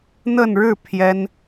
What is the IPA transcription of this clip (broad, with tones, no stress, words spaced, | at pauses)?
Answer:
n̪ə˥˧nɻɻ̩˥˩ pʰjɛ˥n